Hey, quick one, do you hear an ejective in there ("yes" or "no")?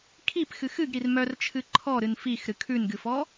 no